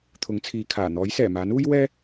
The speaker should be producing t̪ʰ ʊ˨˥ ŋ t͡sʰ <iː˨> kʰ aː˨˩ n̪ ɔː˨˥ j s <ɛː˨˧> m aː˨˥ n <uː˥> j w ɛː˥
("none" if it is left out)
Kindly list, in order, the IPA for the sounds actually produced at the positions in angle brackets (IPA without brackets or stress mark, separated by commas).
iː˨, ɛː˨˩, uː˥